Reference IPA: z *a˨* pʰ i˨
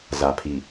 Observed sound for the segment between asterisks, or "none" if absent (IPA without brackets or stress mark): a˨